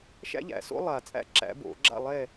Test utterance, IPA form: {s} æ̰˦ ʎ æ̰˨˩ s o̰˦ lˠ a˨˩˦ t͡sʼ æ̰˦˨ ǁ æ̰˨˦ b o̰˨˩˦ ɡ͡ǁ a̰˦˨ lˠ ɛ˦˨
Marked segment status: incorrect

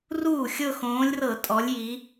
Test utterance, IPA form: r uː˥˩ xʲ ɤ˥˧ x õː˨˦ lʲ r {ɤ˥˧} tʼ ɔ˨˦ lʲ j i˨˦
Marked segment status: incorrect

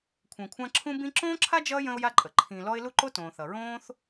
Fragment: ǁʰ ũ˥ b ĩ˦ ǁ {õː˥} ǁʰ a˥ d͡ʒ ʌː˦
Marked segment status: correct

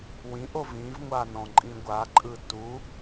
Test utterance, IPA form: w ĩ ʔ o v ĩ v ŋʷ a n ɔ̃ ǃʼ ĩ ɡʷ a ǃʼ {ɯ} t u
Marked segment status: correct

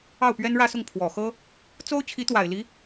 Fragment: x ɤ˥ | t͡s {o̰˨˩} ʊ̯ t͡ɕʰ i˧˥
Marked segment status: incorrect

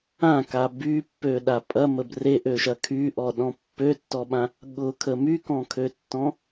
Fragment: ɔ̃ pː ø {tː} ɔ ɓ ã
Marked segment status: correct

